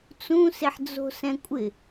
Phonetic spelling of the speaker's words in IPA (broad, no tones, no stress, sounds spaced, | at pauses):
t͡s ũ s e ħ d͡z o̤ s ɛ̃ kʷʼ ɪ